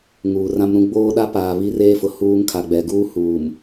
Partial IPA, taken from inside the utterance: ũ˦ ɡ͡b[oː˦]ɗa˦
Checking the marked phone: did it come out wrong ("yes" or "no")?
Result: no